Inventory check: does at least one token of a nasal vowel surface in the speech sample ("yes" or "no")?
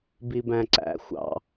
yes